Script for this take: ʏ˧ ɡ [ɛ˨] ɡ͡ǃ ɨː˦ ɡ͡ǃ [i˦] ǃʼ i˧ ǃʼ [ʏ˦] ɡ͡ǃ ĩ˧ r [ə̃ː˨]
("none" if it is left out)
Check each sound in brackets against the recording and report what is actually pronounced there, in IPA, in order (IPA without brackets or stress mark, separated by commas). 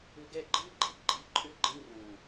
ɛ˦˨, i˦, ʏ˦, ə̃ː˨